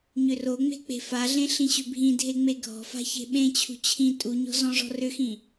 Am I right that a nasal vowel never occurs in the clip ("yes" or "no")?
no